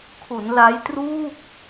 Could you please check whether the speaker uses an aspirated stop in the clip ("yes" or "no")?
yes